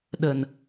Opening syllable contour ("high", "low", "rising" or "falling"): low